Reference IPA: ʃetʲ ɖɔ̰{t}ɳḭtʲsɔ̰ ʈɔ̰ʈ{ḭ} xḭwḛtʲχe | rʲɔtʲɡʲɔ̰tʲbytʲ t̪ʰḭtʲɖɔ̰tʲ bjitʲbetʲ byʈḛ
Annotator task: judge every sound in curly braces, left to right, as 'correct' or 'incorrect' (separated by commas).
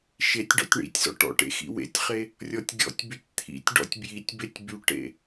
incorrect, incorrect